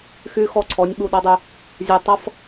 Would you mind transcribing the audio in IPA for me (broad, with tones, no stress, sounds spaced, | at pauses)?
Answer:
x y˦ x ɔ˦ ǀʰ ɔ˨˦ nʲ ɓ u˦ ɗ ɔ˦ dˤ y˦ | zʲ ɛ˦ tˤ ʌ˦ f